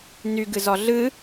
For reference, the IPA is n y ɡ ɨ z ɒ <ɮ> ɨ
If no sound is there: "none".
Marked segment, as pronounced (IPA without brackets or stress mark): ɮ